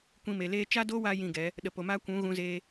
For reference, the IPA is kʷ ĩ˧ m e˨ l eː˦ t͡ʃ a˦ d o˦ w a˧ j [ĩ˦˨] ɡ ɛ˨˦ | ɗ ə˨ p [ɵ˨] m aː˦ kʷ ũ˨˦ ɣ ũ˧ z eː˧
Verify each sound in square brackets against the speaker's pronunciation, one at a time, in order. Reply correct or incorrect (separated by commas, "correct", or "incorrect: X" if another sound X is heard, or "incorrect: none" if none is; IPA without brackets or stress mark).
correct, incorrect: o˨